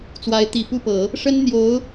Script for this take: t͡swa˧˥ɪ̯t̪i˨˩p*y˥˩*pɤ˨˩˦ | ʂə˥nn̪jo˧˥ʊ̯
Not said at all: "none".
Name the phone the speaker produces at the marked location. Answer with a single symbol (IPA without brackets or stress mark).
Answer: u˥˩